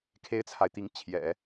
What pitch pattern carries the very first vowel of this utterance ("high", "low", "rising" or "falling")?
high